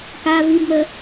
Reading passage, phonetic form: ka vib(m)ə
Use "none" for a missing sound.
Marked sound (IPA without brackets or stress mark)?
m